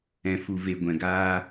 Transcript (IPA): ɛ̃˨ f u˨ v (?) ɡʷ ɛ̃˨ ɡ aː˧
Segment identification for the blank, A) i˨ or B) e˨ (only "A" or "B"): B